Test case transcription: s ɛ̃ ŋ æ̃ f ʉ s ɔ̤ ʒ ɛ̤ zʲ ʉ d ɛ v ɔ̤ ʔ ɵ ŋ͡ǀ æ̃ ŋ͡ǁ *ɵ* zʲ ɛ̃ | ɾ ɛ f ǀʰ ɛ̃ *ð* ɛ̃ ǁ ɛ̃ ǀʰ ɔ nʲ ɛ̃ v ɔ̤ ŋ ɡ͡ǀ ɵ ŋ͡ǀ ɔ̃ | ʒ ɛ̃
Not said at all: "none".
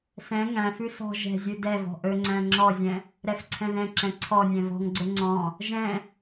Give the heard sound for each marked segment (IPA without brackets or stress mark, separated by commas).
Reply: ɔ, ð